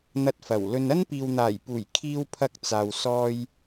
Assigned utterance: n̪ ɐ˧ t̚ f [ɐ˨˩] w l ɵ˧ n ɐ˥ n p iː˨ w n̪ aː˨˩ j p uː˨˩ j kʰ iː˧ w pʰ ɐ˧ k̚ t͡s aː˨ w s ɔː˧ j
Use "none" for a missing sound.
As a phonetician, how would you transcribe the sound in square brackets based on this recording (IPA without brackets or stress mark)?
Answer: ɐ˨˩